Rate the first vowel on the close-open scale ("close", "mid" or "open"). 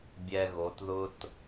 mid